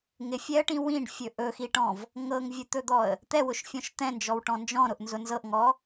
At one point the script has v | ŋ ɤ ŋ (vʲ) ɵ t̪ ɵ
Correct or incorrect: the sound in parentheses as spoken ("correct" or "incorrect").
correct